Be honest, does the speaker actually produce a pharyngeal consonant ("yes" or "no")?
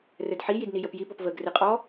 yes